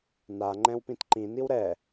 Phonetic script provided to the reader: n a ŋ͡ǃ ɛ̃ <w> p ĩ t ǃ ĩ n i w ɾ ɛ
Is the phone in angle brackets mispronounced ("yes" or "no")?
no